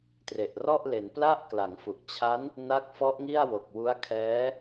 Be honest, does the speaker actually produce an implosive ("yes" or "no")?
no